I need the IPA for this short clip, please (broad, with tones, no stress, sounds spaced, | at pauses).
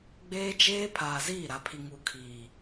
ɡ͡b eː˦ d͡ʒ eː˦ pʰ aː˨ z iː˦˨ ɾ a˨ pʰ i˨ ŋ u˨ kʰ iː˨